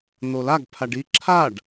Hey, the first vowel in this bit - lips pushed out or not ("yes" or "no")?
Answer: yes